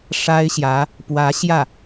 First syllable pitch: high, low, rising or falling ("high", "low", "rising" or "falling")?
high